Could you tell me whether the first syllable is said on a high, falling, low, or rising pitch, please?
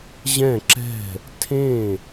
falling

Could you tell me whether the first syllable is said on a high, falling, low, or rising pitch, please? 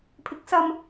rising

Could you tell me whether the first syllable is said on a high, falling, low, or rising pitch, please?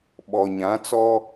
low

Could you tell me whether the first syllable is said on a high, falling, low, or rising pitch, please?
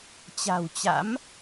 low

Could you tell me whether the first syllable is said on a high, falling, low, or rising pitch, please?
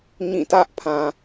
falling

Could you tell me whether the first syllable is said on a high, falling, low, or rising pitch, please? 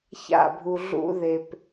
falling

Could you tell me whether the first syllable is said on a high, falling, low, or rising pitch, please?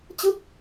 falling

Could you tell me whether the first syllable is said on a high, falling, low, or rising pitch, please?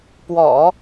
low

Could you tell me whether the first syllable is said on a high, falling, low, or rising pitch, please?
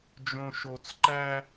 low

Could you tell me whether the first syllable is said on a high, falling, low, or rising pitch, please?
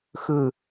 falling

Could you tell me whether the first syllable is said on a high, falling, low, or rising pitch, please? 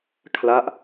falling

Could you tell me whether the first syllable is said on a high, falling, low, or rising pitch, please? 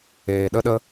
low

